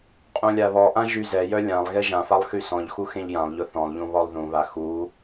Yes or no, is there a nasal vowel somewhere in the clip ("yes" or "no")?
yes